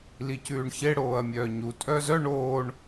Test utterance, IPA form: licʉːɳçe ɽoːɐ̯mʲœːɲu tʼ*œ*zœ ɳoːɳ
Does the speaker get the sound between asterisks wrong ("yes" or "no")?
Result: no